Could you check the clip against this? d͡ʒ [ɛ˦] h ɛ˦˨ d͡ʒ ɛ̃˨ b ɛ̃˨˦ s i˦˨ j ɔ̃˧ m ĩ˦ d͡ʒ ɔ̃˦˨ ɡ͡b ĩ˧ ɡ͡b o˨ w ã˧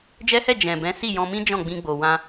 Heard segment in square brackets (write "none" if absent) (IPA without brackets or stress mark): ɛ˦